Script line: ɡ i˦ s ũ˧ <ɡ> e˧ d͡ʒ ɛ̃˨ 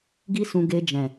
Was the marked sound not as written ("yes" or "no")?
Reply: no